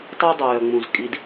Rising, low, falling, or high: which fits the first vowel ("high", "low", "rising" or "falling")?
high